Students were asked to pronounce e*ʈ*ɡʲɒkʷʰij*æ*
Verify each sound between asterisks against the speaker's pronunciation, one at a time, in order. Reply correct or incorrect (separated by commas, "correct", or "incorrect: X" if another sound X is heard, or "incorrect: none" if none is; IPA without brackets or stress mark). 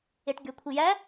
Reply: correct, correct